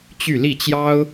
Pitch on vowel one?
falling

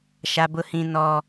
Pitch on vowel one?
high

